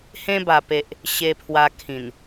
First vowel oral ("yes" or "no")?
no